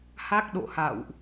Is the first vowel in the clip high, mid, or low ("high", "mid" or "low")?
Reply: low